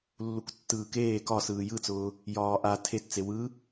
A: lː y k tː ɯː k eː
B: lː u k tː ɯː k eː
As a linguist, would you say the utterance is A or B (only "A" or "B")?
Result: B